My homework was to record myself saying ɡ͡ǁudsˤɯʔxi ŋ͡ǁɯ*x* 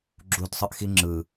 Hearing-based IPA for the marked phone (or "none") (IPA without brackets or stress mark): none